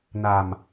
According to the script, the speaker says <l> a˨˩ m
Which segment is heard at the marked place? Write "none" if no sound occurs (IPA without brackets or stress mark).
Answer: n